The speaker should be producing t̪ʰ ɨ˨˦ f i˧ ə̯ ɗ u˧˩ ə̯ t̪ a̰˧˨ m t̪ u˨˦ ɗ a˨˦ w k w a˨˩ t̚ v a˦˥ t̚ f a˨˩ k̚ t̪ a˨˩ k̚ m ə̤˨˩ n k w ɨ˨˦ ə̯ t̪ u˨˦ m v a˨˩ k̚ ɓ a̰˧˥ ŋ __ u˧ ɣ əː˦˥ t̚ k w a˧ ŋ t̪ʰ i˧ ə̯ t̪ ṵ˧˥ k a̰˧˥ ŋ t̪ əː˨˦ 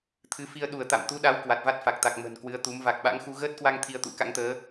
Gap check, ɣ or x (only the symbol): x